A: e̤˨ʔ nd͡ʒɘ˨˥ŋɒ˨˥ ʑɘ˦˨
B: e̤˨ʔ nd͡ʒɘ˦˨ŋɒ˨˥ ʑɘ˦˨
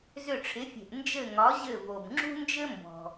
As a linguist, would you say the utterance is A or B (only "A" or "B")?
B